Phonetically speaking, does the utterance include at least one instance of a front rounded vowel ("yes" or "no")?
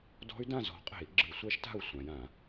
yes